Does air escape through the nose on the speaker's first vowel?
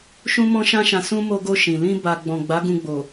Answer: yes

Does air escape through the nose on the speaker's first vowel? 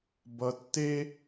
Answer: no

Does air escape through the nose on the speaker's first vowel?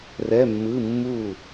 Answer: no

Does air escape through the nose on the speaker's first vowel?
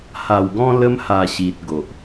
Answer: no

